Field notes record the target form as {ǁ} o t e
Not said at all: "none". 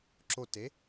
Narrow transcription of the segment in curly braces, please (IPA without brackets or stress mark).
ǁ